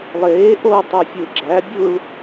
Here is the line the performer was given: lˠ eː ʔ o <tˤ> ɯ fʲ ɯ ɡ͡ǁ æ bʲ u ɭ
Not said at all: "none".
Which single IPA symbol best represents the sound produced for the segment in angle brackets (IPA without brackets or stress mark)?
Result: tˤ